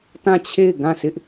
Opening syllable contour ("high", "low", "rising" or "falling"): falling